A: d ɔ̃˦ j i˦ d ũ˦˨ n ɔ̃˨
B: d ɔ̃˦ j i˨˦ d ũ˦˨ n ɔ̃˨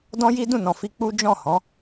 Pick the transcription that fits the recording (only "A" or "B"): A